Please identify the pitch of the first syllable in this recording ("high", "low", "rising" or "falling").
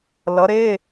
rising